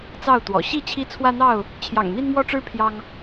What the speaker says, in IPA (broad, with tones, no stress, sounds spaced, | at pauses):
t͡s ɑ˥˨ ʊ̯ t̪ w ɔ̰˨˩ ɕ i˥˨ t͡ɕʰ i˦ t͡sʰ w ä˦ n̪ ɑ˥˨ ʊ̯ | t͡ɕʰ j ɑ̰˨˩ ŋ n̪ i˦ n m w ɔ˦ ʈ͡ʂ ɻ̩˦ pʰ j ɑ˦ ŋ